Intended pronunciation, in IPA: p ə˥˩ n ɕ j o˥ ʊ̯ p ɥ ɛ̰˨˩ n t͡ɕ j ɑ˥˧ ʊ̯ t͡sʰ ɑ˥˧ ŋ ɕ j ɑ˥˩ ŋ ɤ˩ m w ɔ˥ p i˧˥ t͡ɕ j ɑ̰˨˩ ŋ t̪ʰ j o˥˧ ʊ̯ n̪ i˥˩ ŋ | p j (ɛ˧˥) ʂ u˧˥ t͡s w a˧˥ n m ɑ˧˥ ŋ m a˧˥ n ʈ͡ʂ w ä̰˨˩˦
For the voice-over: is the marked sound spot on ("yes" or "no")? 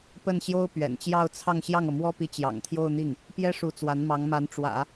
no